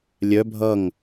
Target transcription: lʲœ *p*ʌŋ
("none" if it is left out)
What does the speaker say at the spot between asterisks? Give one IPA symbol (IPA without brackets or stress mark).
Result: bʱ